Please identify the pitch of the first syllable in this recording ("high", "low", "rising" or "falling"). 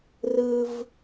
high